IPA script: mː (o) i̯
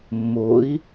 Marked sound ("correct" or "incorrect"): correct